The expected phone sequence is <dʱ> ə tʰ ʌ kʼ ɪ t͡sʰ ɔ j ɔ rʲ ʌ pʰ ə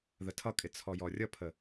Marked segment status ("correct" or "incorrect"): incorrect